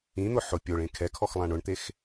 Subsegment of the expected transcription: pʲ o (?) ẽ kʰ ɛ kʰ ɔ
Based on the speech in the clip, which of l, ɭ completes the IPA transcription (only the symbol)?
ɭ